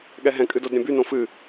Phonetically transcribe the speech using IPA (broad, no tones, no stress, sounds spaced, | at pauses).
ɠ ɛ ɦ ɛ̃ kʼ ɨ d o d ɾʲ ɛ̃ b y n õ f ɨ